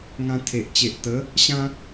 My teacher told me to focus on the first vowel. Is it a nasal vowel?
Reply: yes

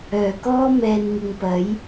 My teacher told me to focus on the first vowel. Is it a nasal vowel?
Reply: no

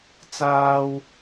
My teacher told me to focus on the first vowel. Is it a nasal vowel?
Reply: no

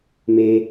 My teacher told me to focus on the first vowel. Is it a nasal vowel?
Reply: no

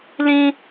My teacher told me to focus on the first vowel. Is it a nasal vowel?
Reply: yes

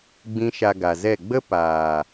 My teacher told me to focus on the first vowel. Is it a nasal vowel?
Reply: yes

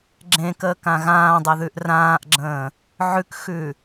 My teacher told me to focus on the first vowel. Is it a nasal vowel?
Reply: yes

